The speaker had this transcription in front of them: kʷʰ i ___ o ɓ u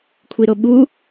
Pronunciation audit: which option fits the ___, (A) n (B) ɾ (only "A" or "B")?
B